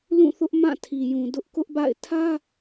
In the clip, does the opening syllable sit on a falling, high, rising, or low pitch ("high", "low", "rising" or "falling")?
falling